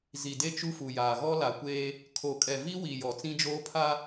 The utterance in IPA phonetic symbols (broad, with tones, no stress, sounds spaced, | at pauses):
z i˨ d e˦ t͡ʃ u˦ f u˨ j aː˨ ɣ ɔ˦ l a˨ kʷ eː˦ | kʰ o˨ kʼ ɛ˨ v i˦ w i˨ j ɔ˨ t͡s ĩ˦ d͡ʒ oː˦ pʰ a˦